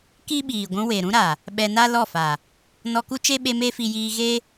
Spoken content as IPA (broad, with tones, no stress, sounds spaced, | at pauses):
k i˦ ɓ iː˨ ɡʷ ũ˧ w e˨ ɾ ũ˦ ɾ a˨ | ɓ ɛ˧ n a˦ l ɔ˦˨ f a˨ | n ɔ˧ k u˦ t͡ʃ e˦ ɓ e˧ m e˦ f i˧ j iː˧ ɣ e˦